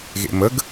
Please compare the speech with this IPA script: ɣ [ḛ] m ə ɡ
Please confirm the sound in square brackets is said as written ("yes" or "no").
yes